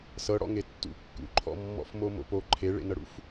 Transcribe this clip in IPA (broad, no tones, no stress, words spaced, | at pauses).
sɤɽɔ̰ŋe tːṵ kːṵǃʰɔ̰mːɔ̰f momo̰po ǃʰeɭḛnɤɽṵf